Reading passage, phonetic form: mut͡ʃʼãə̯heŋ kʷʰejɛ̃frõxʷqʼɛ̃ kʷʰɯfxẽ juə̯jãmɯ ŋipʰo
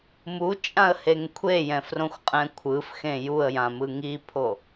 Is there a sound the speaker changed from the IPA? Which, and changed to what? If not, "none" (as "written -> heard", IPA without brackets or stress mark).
none